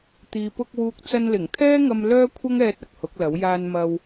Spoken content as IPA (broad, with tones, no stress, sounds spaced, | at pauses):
t̪ iː˨ p ʊ˧ k̚ w uː˨ k̚ t͡s ɐ˧ n l ɪ˨˩ ŋ t̪ʰ ɛː˥ ŋ ɐ˧ m l œː˥ kʷʰ ɐ˥ ŋ ɛː˧ t̚ ɐ˨ k̚ h ʊ˨˥ k̚ l ɐ˨˥ w j aː˧ n m ɐ˧ w